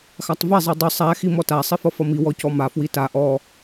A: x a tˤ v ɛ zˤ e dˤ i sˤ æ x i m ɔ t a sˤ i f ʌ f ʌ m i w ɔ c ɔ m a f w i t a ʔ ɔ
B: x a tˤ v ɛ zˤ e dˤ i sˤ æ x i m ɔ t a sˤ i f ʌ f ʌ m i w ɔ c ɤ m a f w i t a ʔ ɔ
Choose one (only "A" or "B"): A